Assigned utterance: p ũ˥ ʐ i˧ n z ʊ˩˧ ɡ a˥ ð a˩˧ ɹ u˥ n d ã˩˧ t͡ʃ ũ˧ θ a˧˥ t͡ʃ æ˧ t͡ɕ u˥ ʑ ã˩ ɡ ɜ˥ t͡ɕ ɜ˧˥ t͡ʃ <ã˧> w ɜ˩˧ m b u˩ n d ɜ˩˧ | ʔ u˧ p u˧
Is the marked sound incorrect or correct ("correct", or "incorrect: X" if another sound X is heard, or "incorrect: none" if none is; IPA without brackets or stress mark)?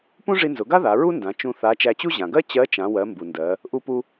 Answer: incorrect: ã˩˧